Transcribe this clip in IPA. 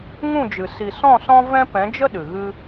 ŋ ũ˦˨ d͡ʒ ɨ˨ s i˨ s ɔ̃˦˨ s ɔ̃˦ v ɛ̃˦ p ɛ̃˨˦ d͡ʒ ə˦ ɗ ɨ˨ ɣ ɨ˦

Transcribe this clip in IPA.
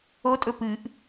o tʼ ɵ p ɨ ʔ

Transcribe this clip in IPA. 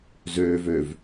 z øː v ø v

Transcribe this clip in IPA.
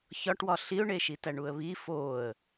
ç ɒ ʈ w ɒ ɬ i ʊ̯ ɳ e ʃ i t æ ɳ u ə̯ β i f o ə̯

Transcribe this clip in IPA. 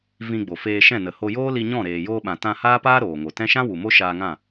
v ĩ˧ ɡ͡b o˨ f eː˧ ʃ ɛ̃˦˨ n ə˨ h o˧ j oː˦ l i˧ ɲ ɔ̃˦˨ ɾ eː˨ j oː˧ ɓ ã˨ t ã˧ h aː˦ p aː˦ ɾ oː˨ ŋ o˨ t ɛ̃˦ ʃ ã˦ w u˨ m o˦ ʃ aː˧ ŋ ã˦˨

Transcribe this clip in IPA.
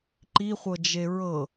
ǃ i χʷ ɤ d͡ʒ e ɹ ɤ

